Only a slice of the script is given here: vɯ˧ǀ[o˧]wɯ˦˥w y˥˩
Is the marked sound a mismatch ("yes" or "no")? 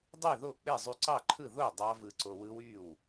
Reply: no